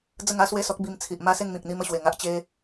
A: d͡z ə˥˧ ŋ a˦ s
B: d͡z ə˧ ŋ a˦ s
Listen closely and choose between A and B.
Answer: A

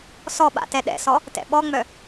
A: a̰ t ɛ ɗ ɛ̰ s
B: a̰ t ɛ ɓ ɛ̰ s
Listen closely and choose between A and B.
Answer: A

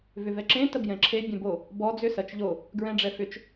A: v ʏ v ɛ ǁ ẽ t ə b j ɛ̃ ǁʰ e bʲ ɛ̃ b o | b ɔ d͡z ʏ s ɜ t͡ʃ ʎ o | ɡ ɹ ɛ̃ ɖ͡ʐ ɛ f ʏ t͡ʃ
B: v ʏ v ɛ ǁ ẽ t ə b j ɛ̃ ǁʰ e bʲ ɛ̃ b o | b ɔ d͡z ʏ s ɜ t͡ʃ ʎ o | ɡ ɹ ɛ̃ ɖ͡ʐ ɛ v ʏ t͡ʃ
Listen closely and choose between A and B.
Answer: A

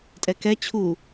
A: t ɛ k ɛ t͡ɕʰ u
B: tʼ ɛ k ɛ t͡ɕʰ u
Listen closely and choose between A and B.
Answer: B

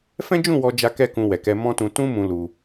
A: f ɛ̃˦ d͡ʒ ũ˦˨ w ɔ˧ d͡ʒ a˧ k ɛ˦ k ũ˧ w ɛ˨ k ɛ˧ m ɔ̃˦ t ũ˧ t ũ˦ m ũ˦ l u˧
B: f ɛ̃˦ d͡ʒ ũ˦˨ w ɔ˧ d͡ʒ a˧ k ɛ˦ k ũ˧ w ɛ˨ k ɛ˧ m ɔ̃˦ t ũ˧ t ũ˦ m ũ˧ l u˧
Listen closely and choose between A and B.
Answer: B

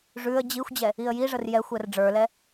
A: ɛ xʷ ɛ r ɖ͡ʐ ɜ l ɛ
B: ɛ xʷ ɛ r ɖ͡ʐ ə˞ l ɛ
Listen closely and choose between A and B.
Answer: B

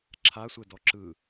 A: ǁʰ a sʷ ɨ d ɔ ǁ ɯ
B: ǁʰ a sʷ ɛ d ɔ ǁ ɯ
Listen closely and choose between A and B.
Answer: B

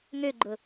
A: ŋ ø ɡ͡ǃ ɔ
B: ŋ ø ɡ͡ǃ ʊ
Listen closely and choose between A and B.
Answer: B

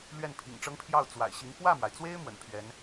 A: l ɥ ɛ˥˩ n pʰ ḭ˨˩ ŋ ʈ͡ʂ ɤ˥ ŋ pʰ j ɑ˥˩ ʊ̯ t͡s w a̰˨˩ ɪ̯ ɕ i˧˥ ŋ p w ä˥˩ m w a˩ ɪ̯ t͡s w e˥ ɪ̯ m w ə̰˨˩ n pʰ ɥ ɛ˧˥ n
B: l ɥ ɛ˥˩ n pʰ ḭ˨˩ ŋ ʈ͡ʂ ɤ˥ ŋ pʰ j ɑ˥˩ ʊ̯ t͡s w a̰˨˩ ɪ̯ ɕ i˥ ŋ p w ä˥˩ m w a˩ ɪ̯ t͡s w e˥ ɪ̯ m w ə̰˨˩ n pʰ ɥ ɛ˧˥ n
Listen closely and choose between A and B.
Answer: A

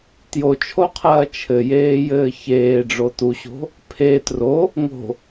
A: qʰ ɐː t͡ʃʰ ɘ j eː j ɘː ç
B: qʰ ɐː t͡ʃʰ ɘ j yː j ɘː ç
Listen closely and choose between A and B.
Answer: A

